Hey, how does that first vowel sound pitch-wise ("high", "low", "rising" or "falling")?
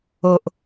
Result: low